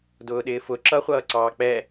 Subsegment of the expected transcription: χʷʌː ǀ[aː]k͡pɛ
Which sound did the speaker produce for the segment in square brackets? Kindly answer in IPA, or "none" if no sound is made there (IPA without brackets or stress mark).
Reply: ɑː